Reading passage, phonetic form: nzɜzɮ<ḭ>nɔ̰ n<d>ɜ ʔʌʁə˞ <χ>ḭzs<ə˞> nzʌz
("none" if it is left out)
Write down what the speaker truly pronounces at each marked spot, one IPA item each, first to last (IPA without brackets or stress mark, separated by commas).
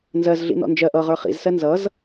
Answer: ḭ, d͡ʒ, χ, ɜ